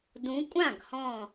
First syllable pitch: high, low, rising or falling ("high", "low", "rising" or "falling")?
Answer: rising